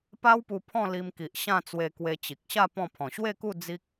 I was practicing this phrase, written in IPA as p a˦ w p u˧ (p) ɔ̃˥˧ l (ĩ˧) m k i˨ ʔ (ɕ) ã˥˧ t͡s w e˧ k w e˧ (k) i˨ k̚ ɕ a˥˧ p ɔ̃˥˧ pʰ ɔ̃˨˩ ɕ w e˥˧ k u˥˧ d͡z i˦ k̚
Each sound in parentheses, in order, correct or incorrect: incorrect: pʰ, incorrect: i˧, correct, incorrect: t͡ɕ

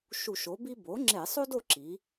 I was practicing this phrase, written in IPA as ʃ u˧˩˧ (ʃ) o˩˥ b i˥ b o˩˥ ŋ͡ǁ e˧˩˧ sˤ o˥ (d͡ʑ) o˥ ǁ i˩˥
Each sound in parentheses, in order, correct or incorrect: correct, incorrect: d

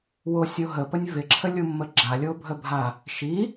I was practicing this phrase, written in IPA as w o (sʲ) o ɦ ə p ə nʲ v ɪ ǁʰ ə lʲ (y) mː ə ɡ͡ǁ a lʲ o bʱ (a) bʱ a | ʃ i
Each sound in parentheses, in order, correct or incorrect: correct, incorrect: u, incorrect: ə

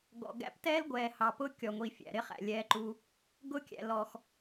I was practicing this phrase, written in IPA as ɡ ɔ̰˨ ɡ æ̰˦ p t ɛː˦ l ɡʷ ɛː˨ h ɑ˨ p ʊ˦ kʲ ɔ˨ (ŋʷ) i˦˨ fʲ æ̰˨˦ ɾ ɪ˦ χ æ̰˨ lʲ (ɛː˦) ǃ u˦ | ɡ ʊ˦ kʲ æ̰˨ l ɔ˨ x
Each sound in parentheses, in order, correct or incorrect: correct, correct

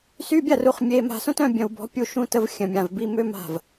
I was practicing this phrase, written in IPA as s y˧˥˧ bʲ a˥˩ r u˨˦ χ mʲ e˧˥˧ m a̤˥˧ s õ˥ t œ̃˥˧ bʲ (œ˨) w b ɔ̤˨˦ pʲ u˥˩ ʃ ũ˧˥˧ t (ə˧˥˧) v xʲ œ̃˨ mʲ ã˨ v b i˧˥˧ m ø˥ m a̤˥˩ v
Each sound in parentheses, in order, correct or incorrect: incorrect: œ̃˨, correct

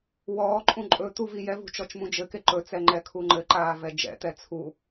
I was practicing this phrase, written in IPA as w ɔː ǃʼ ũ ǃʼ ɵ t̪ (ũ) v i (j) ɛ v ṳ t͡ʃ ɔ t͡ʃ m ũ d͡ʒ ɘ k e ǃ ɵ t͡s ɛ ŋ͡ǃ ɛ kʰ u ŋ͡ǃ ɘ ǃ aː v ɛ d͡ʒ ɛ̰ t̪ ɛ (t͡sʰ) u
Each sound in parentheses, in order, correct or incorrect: incorrect: u, correct, correct

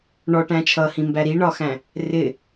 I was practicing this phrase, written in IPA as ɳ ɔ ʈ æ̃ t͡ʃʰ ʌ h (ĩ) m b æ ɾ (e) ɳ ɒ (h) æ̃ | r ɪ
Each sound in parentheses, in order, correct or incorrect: correct, incorrect: i, incorrect: x

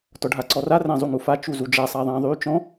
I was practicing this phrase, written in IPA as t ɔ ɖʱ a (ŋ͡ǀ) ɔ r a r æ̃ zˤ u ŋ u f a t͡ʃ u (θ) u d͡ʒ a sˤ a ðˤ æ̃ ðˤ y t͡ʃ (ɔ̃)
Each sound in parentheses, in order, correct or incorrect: incorrect: ǀ, incorrect: z, correct

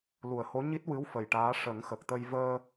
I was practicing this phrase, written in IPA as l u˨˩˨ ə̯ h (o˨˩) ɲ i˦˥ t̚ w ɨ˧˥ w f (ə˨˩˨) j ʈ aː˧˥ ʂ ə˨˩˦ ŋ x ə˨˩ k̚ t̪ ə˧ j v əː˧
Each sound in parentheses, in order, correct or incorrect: incorrect: o˧˥, incorrect: ə˨˩

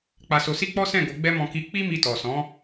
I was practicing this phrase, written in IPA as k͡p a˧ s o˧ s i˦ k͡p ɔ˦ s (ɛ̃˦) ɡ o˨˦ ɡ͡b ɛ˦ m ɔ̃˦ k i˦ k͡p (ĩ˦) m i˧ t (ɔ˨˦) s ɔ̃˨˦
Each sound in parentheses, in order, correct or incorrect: incorrect: ɛ̃˦˨, incorrect: i˦, incorrect: ɔ˨

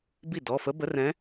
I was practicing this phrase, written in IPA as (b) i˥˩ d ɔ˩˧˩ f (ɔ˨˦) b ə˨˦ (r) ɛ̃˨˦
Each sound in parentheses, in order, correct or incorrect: correct, incorrect: ə˨˦, correct

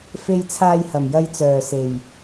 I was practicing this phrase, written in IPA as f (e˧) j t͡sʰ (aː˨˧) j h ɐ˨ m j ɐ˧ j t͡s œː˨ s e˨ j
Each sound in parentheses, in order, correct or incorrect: correct, incorrect: aː˧

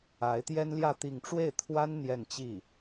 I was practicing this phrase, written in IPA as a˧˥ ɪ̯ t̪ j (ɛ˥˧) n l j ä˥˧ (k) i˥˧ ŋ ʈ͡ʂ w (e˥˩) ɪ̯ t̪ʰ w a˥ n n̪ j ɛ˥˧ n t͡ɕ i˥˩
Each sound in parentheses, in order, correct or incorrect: incorrect: ɛ˥, incorrect: t̪, correct

